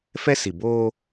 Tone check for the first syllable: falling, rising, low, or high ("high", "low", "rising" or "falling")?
high